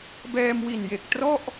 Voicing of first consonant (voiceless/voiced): voiced